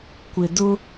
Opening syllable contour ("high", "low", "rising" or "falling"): low